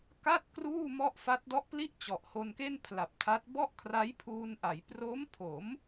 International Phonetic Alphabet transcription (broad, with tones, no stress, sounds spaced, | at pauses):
k a˥˩ t̚ k r uː˥˩ m ɔ˥˩ ʔ f a˦˥ t̚ d ɔ˦˥ ʔ p l i˥˩ ʔ t͡ɕ ɔ˨˩ ʔ h o˧ n k e˥˩ n pʰ l a˨˩ p̚ tʰ a˦˥ t̚ b ɔ˥˩ ʔ kʰ r a˦˥ j pʰ uː˧ n ʔ a˩˦ j p r o˦˥ m pʰ o˩˦ m